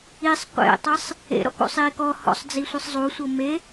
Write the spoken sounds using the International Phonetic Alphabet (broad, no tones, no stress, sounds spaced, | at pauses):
i sˤ qʷ ḛ tˤ ɤ sˤ | ḛ ɾ ɔ̰ k o̰ sˤ iː k ɔ h ɔ̰ sˤ d͡z i sʷ ɯ sˤ zˤ u sʷ ɤ m e